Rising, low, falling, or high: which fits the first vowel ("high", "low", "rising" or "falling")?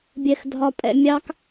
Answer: high